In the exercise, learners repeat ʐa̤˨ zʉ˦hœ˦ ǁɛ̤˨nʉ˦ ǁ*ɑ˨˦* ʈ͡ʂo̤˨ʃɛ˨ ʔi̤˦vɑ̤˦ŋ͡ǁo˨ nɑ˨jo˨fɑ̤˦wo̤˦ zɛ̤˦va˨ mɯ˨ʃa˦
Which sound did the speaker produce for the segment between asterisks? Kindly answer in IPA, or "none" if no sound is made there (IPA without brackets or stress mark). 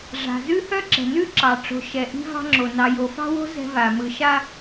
ɑ˨